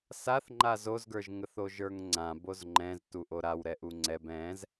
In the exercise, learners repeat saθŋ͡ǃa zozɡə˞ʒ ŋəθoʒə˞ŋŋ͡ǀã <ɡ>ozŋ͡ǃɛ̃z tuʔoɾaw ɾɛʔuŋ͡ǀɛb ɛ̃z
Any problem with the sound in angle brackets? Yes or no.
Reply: yes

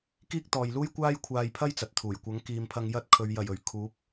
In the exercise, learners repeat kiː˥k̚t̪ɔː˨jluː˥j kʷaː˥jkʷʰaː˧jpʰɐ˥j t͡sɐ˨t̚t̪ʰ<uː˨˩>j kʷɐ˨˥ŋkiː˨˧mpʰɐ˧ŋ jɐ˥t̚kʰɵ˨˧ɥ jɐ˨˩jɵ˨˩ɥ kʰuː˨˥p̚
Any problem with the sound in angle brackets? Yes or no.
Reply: no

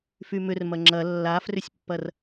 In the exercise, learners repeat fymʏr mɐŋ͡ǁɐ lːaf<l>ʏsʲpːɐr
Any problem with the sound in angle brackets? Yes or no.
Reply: yes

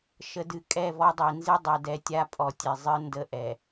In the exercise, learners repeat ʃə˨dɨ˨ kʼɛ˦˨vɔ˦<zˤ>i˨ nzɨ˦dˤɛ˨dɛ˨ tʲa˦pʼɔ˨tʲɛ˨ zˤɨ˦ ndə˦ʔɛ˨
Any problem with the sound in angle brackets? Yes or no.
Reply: yes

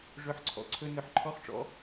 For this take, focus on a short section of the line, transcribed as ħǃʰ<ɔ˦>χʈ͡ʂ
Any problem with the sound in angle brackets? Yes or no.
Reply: no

